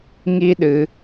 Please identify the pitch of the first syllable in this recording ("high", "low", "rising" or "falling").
high